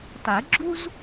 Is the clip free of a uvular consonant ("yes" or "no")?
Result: yes